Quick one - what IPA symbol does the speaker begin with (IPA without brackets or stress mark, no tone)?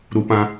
ɾ